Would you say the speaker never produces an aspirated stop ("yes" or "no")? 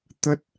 yes